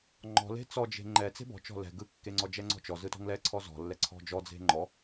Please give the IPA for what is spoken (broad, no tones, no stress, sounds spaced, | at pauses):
ŋ͡ǃ ɔ̤ l e̤ t͡s ɔ d͡ʒ e̤ ŋ͡ǃ ɛ t͡s e̤ b ɔ̤ t͡ʃ ɔ̤ l ɛ̤ ɡ ɯ kː e ŋ͡ǀ ɔ d͡ʒ ɛ ŋ͡ǀ ɔ̤ t͡ʃ ɔ z ɯ t ɔ̤ ŋ l ɛ ǀʰ ɔ z ɔ̤ lː ɛ ǀʰ ɔ̤ d͡ʒ ɔ d͡z e̤ ŋ͡ǃ ɔ